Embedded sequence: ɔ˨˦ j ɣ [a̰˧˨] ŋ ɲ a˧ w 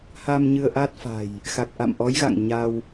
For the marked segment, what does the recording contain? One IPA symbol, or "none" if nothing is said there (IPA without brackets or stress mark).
a̰˧˨